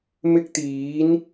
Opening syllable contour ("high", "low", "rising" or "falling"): high